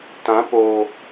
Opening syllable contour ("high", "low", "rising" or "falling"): rising